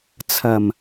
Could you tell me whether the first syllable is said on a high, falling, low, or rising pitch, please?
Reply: low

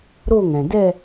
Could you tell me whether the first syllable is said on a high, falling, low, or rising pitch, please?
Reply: falling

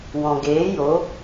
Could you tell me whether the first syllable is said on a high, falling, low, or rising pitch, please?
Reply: low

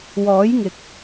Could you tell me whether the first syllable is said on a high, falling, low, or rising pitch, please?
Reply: rising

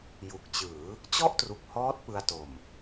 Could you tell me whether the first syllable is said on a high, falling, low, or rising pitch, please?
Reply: low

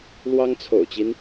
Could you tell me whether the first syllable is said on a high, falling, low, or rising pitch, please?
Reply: high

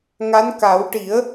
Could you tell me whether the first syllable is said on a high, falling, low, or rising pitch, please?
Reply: rising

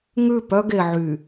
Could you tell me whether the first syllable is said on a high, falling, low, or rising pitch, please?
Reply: falling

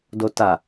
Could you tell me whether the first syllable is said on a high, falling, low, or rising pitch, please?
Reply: low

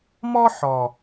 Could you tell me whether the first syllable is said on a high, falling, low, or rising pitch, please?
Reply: high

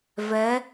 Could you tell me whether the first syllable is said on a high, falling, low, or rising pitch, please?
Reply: rising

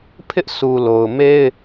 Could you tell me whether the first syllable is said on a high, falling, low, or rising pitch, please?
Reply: high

